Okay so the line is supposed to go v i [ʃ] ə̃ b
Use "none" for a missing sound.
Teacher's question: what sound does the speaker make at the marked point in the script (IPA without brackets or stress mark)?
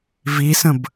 s